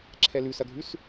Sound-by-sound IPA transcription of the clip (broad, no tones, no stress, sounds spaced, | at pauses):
ǁʰ ɛ l ʉ s ɐ ɡʱ ʉ s